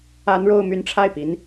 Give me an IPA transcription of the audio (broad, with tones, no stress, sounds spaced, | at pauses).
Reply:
a˥ n ɻ o˥˧ ʊ̯ m y˥˧ n ʈ͡ʂʰ a˥˩ ɪ̯ p i˧˥ n